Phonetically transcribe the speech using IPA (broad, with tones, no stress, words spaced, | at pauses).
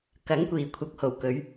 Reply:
kɐ˨˥ŋkʷiː˨˩ kʷʰɐ˨k̚ho˨˩w kɵ˨˧ɥ